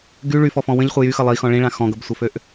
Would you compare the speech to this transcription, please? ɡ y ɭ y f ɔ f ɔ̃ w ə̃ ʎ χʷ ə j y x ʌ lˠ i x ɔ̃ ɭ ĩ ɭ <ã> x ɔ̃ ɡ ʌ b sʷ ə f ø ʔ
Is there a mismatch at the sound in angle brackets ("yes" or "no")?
no